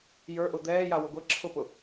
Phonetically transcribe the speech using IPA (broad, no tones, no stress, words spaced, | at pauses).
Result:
jə˞ʔʊ d̪ɛːjawʊ ɡʷɛ ǁʰʊpʊ